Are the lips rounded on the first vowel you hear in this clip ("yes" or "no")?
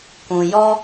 yes